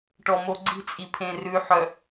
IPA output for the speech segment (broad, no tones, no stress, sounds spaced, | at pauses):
ʈ ɔ m o ɡ͡ǀ i̤ t͡sʼ i pʰ ẽ r ʉ ħ œ